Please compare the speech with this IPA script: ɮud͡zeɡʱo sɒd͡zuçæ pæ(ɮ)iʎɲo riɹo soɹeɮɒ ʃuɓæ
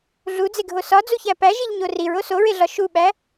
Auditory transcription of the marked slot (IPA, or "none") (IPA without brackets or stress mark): ʒ